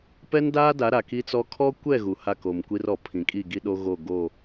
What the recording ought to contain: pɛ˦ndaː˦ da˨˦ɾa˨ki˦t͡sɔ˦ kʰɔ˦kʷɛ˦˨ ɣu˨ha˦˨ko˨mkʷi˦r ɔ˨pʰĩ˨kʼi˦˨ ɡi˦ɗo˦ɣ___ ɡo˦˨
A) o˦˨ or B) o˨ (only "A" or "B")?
A